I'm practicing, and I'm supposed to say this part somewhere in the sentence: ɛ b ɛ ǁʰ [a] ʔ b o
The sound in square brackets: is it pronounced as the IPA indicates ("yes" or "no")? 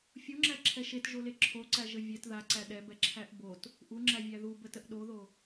no